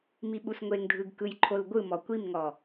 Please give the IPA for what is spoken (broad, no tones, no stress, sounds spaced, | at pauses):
m i ɓ u s ŋʷ e ŋ dʱ ɯ ɡ k ɯ j ǃʰ o l ɡʷ ɯ m ɔ kʷ i m ŋ ɔ